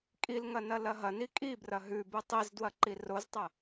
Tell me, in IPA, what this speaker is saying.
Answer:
kʼ i l ŋ ɐ n ɐ l ɐ ɦ ɐ n i kʼ i b r ɐ ɦ ʉ b ɨ tˤ i z d w ɐ ǃ i r o z tˤ ɐ

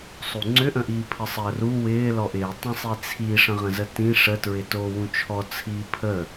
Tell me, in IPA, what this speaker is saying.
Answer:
sˤ u ŋ͡ǀ ʏ ʔ ə̃ ʔ iː pʰ ə sˤ əː r u w ɪː l ɔ ʔ ɪː tˤ ə̃ sˤ i t͡sʰ i ʂ ə̃ ʁ ə̃ z ə t ĩ ʂ ə t ɹ ɪ t oː w ũ t͡ʃʰ ɔ t͡sʰ iː pʰ ə

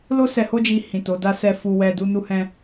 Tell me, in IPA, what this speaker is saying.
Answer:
l o˦ s ɛ˧ h o˦ d͡ʒ i˧ h ĩ˨ t o˨˦ d a˦ s ɛ˦ f u˧ w ɛ˧ d u˦ n u˦ h ɛ̃˦

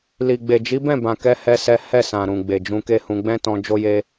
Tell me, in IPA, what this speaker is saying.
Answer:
l i˨ ɡ͡b e˨ d͡ʒ i˨˦ b ɛ̃˦˨ b ã˨ k ɛ˧ h ɛ˦ s ɛ˦ h ɛ˦˨ s ã˨ ɾ ũ˨ ɡ͡b e˨ d͡ʒ ũ˧ k e˦ h ũ˧ ɡ͡b ɛ̃˦ t ɔ̃˧ d͡ʒ o˦ j e˦

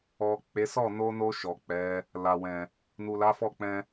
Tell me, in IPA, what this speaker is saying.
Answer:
ɔ˨ k͡p e˨˦ s ɔ˦˨ n o˧ n o˧ ʃ ɔ˨ k͡p ɛ˨˦ | l a˨ w ɛ̃˨ | n u˨ l a˨˦ f ɔ˦˨ k͡p ɛ̃˧

